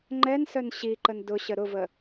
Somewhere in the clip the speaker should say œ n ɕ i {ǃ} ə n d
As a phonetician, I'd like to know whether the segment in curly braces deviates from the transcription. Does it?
no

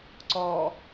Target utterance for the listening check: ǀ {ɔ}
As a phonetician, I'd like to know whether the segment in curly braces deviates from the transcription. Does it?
no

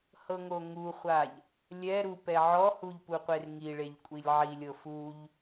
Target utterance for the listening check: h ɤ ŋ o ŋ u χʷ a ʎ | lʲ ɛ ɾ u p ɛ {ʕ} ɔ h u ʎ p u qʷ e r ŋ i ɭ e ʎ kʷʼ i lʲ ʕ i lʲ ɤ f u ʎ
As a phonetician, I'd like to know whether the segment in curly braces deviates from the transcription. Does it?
no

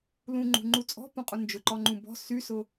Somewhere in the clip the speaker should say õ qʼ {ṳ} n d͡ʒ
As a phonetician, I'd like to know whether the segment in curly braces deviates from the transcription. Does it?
yes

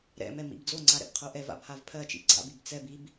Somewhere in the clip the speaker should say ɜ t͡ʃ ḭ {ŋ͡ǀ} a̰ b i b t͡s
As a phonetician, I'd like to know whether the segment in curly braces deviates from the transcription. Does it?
yes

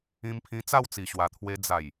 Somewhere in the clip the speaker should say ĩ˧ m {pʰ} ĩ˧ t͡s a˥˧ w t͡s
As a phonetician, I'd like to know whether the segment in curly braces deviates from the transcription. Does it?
no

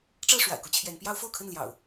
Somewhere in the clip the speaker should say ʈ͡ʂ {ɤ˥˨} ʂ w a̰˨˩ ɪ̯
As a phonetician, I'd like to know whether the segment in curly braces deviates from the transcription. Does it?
no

